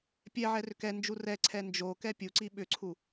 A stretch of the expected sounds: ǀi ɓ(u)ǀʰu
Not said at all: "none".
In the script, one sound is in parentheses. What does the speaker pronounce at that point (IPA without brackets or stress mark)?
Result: ʏ